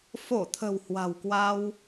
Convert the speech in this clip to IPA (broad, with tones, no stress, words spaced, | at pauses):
fo˧˩t̪ʰə̤˨˩w hwa̤˨˩wkwa˧w